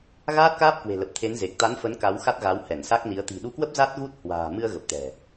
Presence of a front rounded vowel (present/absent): absent